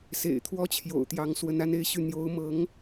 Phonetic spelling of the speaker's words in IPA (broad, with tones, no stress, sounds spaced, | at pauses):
s ḛ˨˩ ɪ̯ t̪ʰ w ɔ˥ t͡ɕʰ j o̰˨˩ ʊ̯ t̪ j ɑ˧˥ ŋ s w ə˧˥ n a˥ n e˥˧ ɪ̯ ɕ y˥˩ n̪ j o˧˥ ʊ̯ m ɤ˧˥ ŋ